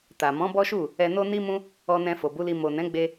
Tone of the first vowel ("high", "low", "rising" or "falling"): low